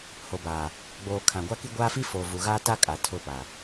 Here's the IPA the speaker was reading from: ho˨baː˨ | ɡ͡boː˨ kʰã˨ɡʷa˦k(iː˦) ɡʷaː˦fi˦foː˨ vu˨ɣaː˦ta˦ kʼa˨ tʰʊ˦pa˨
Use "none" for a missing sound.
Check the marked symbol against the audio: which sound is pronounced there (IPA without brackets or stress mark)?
i˦